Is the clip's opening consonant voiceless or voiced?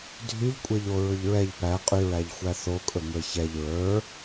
voiced